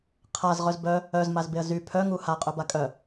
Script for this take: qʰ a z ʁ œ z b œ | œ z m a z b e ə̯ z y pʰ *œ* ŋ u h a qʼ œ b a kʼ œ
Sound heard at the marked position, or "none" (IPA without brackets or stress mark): œ